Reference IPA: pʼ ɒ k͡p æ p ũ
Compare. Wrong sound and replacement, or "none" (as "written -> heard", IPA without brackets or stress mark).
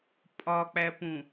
none